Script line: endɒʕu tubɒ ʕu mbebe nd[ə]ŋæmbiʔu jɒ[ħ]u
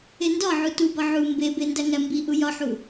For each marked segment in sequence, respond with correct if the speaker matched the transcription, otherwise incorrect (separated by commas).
incorrect, correct